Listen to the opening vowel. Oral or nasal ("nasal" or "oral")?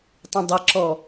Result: nasal